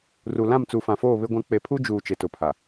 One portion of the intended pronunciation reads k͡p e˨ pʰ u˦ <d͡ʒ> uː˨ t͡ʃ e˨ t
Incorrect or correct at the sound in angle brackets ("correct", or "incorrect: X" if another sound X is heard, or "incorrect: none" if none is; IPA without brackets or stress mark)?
correct